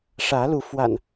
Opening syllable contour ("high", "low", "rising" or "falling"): rising